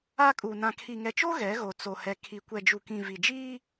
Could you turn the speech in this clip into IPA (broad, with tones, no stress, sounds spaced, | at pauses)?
a˦ kʼ u˨ n ã˨ kʰ i˨ ŋ ɛ˨ t͡ʃ o˦ ɣ ɛ˨˦ ɣ o˨ t͡s o˨ h ɛ˨ kʰ i˨ kʷ ɛ˨ d͡ʒ u˨ k ĩ˨ v i˨ d͡ʒ iː˦